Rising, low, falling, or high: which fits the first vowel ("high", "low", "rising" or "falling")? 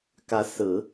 rising